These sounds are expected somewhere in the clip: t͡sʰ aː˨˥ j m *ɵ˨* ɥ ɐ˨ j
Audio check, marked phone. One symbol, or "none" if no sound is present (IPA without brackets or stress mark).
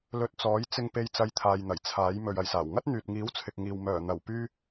ɵ˨